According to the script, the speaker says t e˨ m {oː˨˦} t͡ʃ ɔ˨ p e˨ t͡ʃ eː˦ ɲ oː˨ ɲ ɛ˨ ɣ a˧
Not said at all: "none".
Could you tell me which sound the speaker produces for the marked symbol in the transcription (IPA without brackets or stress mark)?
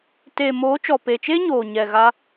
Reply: oː˨˦